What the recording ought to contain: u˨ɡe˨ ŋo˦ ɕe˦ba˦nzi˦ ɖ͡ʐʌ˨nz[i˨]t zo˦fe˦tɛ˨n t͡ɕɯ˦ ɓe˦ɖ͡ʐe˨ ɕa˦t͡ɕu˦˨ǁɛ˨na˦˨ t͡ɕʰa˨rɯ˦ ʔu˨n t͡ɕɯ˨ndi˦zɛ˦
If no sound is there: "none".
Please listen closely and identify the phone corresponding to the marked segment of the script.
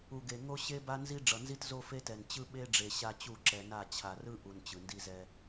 i˦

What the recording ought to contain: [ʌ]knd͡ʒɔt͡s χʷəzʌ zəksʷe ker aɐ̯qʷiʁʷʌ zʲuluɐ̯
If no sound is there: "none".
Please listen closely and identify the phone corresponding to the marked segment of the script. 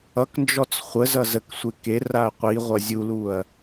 ʌ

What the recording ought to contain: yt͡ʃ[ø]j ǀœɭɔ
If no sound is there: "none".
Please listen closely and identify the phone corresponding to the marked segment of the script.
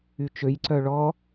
ø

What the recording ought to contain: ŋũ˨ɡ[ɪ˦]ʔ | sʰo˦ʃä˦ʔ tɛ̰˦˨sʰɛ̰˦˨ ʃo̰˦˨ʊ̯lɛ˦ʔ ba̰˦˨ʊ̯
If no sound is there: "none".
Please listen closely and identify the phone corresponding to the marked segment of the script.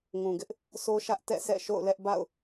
ɪ˦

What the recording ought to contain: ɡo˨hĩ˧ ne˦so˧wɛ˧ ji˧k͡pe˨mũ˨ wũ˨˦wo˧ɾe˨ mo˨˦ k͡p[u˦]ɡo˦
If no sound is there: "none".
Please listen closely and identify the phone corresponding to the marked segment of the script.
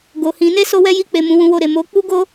u˦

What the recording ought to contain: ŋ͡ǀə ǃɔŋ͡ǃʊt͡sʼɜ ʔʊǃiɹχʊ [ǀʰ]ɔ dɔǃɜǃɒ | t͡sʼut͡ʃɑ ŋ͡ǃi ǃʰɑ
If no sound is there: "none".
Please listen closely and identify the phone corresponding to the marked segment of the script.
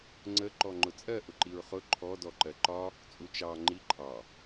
ǃʰ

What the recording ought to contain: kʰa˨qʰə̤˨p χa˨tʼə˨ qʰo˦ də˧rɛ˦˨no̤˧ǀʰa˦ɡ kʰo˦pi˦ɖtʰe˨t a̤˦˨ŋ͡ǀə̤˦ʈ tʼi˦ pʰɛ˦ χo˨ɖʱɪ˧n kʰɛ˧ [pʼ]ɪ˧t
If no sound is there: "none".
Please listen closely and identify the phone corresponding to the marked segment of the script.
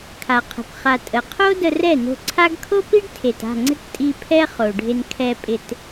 pʼ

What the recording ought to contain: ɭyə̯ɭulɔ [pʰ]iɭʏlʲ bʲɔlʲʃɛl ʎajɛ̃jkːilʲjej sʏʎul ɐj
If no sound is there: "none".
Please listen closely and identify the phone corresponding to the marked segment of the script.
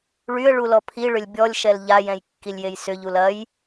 pʰ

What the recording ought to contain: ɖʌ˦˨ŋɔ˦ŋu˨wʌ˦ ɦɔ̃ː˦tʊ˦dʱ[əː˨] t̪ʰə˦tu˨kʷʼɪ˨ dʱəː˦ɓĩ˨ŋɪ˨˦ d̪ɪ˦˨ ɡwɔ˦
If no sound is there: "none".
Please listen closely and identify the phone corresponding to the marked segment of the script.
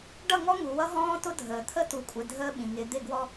əː˨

